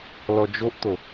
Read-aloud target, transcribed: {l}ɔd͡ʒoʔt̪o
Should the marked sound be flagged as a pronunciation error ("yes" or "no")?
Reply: no